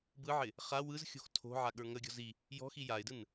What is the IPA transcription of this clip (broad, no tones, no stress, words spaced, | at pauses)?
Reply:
bɯʕɪ | χa wɯzxʲo̤x tʰo̤ ʕaɠə˞ŋəɡʲɔ̤ zi | jɔ̤xi jaɪ̯dɯn